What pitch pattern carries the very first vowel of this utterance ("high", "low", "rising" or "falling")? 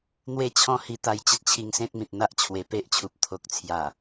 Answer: falling